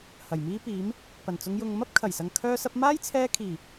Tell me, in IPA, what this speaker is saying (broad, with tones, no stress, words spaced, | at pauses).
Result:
hɐ˨˩jmiː˥piː˨˥m | pɐ˨˩nt͡sʊ˨˧ŋjʊ˨ŋ mɐ˥p̚kʰɐ˨˩jsɐ˨ŋ kʰœː˥sɐ˥p̚ maː˥jt͡sʰɛː˧kʰiː˨˩